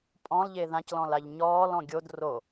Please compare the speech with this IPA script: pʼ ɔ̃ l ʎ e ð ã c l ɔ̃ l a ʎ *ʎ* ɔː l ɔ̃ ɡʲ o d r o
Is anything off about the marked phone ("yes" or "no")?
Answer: yes